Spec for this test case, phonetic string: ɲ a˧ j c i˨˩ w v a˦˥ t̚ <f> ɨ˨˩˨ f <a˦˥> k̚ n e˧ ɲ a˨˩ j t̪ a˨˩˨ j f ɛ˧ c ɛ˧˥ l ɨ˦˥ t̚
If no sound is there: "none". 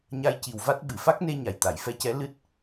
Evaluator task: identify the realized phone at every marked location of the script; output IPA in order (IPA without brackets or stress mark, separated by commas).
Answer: ɓ, a˦˥